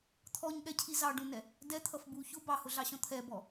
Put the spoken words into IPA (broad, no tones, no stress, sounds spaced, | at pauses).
t̪ʰ ɔ ɲ ɠ ɛ cʰ i z ɑ ɖ ũ n ɛ | d ɛ t̪ʰ ʌ f b u ç ʊ b ɑ h ʊ ɮ ɑ ɕ ɔ̃ t̪ʰ ɛ b ɔ